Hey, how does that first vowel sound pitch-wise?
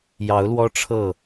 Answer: rising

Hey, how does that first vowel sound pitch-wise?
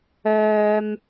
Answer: low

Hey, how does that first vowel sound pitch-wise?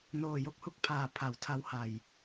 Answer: low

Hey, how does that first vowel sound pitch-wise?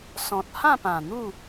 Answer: low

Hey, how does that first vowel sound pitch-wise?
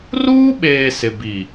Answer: high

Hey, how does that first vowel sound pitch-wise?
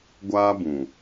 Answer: high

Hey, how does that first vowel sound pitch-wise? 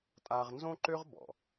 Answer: high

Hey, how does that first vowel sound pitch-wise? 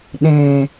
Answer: low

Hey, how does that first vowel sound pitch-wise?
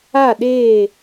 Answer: falling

